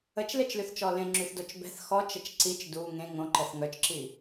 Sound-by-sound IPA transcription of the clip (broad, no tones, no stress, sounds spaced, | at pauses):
ə t͡ʃ l e t͡ʃ l y θ t͡ʃ ɔ l ẽ ŋ͡ǁ y θ d o t͡ʃ b ɛ̤ θ x ɔ t͡ʃ ə t͡ʃ ǀ i t͡ʃ d u ŋ ẽ ŋ õ ǃ ɛ θ ŋ œ t͡ʃ ǁ i